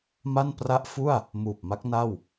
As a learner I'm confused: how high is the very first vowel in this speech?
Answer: low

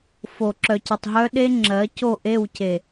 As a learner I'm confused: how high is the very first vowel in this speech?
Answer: mid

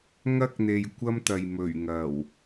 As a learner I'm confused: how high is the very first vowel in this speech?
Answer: low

